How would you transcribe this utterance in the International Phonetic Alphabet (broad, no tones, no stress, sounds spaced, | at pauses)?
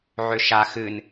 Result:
ʕ ʏ ʃ a x ɨ n